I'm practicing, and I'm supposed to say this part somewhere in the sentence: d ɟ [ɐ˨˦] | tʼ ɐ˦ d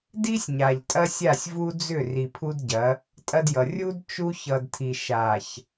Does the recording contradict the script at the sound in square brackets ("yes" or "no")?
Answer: no